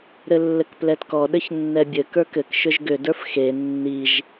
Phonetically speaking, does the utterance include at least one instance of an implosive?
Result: yes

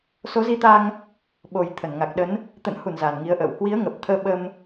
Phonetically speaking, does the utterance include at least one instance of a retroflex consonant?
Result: no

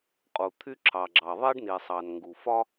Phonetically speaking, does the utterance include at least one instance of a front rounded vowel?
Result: yes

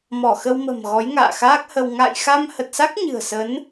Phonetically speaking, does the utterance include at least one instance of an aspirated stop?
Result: no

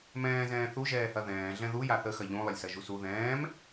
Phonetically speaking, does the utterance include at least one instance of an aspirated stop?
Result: no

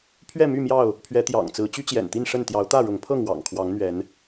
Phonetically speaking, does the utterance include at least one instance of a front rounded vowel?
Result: yes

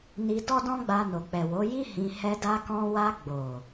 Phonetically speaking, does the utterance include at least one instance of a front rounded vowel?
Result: no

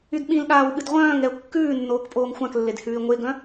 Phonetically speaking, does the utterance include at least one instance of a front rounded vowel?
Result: yes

